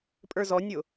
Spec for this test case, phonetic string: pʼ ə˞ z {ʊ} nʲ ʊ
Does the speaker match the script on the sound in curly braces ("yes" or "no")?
no